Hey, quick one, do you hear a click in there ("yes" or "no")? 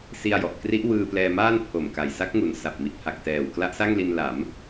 no